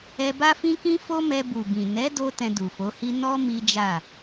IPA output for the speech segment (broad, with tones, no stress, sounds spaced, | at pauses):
ɛ˧ b a˦ f ĩ˦ k ĩ˦ f o˦ m ɛ˧ b u˨ b ĩ˨ n ɛ˨˦ d o˧ t ɛ̃˧ d u˨ f o˨˦ h i˦ n ɔ˦ m i˦ d͡ʒ a˦˨